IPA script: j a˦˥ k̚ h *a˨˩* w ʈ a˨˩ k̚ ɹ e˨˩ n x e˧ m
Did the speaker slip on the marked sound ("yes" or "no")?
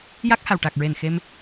no